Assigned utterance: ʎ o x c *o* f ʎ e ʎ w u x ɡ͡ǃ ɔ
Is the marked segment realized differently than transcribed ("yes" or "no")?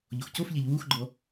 no